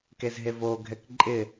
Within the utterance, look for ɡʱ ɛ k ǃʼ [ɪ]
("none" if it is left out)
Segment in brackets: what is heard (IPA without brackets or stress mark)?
ɪ